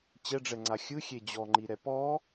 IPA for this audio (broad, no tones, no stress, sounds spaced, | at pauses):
t͡ɕ ɛ ɖ͡ʐ ɛ ŋ͡ǀ a xʲ ɯ xʲ e d͡ʑ ɔ ŋ͡ǃ i ɾ ɛ p ɔ